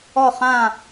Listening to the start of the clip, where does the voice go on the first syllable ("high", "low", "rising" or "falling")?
falling